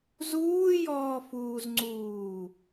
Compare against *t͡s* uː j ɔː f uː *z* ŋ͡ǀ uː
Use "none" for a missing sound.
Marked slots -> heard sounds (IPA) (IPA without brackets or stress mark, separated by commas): z, z